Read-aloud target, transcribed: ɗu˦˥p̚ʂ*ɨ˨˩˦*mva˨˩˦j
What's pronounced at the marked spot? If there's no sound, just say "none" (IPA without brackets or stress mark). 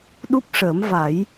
ə˨˩˦